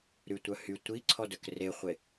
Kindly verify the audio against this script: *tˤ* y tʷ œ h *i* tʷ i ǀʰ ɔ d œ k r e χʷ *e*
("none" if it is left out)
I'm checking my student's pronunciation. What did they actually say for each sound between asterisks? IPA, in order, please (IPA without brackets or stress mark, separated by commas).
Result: ɾ, y, e